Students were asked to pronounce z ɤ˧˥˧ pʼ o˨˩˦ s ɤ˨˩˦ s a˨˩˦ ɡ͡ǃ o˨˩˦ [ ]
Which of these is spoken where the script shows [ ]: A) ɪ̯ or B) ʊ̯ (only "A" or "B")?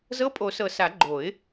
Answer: A